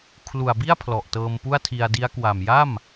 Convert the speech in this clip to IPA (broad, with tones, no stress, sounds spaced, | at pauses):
kʰ l u˨˩ a̯ b i˥˩ a̯ pʰ l ɔ˨˩ ʔ t ɤː˧ m p u˥˩ a̯ tʰ i˧ a̯ d i˦˥ a̯ k w a˨˩ m j a˥˩ m